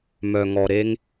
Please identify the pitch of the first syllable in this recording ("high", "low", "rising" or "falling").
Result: low